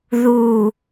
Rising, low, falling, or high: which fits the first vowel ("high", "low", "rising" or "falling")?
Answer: low